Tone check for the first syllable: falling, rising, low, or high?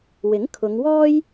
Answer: rising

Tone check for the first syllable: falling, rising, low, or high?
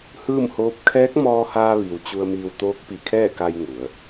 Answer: falling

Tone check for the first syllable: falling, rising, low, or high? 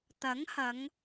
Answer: rising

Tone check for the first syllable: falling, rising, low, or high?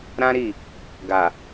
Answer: high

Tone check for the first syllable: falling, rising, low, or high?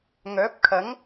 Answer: rising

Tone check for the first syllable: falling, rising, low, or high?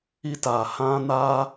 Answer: high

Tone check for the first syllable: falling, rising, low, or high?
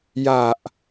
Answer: low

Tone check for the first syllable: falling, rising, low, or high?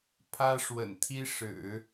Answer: high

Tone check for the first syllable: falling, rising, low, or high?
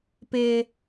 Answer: low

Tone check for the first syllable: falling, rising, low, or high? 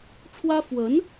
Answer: high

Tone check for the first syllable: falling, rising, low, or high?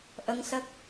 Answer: rising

